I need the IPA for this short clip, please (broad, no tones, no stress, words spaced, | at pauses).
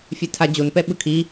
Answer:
fʲetʰad͡ʑonpɛ ɓɯkʰi